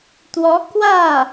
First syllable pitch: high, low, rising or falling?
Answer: rising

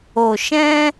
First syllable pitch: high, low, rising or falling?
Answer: low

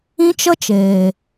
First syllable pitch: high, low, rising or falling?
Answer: high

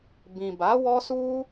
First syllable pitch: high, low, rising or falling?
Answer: low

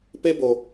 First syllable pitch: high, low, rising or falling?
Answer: high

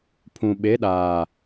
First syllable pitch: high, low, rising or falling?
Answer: low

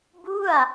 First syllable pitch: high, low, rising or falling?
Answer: falling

